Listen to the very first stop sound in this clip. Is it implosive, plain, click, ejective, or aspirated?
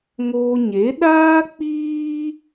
implosive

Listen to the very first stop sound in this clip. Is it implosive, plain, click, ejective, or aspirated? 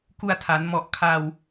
plain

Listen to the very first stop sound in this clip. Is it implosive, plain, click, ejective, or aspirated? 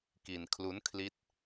plain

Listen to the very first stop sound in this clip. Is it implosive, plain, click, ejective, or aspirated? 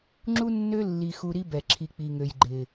click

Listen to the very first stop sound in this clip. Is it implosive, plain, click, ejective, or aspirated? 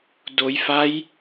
plain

